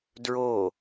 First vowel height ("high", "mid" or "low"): mid